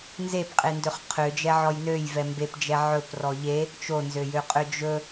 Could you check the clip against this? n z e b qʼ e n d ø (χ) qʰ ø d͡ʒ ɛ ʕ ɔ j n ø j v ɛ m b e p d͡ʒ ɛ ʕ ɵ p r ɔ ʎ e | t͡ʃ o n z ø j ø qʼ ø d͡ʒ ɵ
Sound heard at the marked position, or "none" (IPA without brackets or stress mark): χ